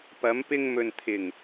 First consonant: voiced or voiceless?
voiceless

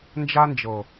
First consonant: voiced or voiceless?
voiced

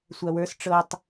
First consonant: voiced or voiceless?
voiceless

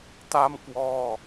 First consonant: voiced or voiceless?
voiceless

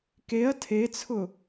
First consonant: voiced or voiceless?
voiceless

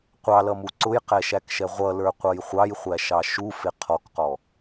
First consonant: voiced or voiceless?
voiceless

